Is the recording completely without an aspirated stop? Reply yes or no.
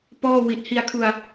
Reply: no